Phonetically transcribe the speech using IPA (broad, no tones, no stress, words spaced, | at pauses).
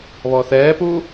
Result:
βɔθɛːpu